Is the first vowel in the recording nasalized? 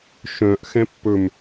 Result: yes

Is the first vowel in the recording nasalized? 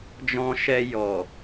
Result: yes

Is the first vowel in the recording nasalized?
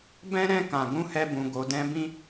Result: yes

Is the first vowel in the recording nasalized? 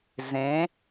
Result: yes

